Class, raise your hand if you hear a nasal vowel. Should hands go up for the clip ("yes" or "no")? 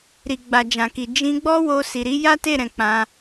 yes